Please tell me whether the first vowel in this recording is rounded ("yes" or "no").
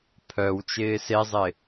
yes